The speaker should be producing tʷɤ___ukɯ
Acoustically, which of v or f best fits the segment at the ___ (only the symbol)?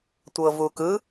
v